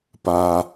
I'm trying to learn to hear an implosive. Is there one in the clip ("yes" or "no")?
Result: no